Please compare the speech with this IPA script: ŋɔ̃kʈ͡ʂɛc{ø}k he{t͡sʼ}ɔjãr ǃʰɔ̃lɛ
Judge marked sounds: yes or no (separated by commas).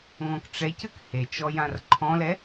no, no